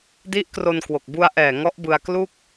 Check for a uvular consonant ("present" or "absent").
absent